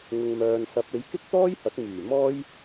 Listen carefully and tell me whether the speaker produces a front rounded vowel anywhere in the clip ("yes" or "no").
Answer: yes